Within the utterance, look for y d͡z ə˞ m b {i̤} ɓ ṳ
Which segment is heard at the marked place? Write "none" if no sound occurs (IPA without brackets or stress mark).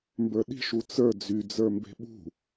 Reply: e̤